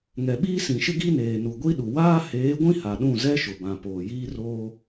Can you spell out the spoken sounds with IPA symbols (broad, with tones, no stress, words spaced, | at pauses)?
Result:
ŋɛ˨ɓiː˦sĩ˨ʃɪ˦ ɡi˦neː˨ nu˨ɡʷi˦ɗu˨ waː˦heː˨˦ɡʷĩ˦ ha˨ɗũ˦˨ zɛ˦ʃʊ˨bã˨ poː˨ jiː˦roː˦